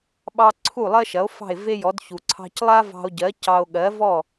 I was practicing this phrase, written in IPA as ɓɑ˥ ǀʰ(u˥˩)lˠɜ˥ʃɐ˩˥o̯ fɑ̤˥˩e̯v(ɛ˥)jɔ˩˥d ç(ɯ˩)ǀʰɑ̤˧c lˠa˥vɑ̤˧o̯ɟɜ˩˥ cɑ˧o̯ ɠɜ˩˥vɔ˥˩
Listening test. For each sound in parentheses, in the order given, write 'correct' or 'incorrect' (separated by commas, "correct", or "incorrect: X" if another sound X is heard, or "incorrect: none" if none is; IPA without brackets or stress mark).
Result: correct, incorrect: e˥, incorrect: u˩